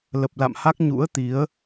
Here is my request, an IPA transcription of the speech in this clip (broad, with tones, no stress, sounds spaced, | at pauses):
l ə˨˩ p̚ l a̰˧˨ m h a˦˥ k̚ ɲ ṵ˧˥ ə̯ t̪ i˨˦ ə̯